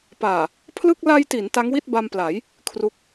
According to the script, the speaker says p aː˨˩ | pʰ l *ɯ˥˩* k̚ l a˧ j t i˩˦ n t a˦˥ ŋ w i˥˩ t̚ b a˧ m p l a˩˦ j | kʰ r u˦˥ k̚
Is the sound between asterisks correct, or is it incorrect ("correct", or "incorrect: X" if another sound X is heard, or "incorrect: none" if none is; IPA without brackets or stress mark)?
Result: correct